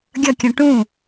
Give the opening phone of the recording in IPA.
ɡʲ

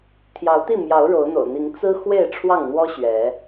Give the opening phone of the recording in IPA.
t̪ʰ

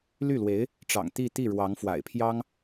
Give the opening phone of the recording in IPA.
l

